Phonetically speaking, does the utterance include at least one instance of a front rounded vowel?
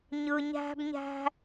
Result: no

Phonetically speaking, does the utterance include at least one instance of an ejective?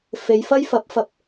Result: no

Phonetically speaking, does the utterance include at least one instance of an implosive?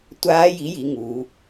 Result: no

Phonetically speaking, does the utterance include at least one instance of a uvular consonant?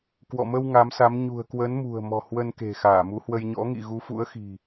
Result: no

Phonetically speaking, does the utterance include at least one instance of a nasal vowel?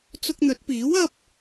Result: no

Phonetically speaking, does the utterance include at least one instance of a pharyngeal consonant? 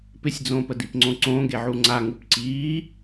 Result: yes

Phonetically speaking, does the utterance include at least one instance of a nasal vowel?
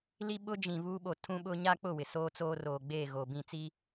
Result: yes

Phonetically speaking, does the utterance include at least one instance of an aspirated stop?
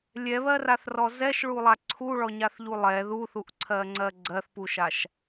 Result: yes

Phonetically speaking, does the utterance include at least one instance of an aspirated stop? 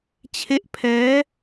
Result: yes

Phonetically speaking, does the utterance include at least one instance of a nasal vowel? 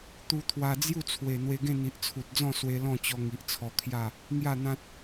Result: yes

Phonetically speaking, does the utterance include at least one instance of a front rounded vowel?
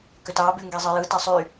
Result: yes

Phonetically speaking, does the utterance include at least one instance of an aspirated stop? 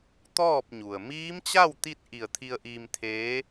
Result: yes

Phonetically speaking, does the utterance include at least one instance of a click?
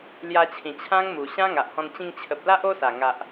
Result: no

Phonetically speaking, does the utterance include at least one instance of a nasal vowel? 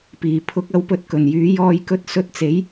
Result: no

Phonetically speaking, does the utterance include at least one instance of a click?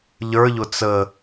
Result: no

